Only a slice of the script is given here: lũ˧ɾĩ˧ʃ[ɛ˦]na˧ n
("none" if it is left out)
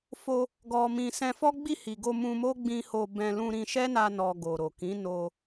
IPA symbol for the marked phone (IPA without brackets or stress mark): ɛ˦